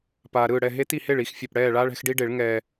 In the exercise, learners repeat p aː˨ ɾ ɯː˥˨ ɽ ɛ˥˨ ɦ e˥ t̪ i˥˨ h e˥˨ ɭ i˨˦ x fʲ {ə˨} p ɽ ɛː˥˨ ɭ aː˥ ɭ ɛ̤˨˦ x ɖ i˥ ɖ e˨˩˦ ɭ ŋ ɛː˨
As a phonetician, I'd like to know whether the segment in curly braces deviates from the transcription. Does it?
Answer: yes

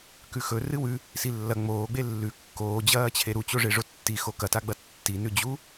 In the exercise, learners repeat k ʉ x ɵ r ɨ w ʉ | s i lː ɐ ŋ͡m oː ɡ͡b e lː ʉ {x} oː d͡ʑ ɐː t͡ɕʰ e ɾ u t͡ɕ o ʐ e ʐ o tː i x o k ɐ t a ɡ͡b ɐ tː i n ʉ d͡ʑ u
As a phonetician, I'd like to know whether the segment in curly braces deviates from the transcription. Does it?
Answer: yes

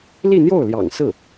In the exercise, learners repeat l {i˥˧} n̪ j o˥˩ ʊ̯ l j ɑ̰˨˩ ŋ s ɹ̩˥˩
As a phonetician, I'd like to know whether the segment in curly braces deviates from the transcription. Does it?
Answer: no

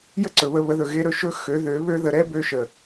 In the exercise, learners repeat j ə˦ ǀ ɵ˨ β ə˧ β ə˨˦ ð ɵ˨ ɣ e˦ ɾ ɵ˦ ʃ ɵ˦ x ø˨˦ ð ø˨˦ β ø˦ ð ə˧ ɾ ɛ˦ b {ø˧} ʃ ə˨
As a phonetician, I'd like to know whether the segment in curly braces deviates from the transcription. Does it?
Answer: no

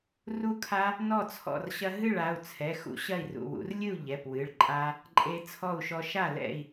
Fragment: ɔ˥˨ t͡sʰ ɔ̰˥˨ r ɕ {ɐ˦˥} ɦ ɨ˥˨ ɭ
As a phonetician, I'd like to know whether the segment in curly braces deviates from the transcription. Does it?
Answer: no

